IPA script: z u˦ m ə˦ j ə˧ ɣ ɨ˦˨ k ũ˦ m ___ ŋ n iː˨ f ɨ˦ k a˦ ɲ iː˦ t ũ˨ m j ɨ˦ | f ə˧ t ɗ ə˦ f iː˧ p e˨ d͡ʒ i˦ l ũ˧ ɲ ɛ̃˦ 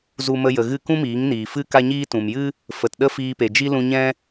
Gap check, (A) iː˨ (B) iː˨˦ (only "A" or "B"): B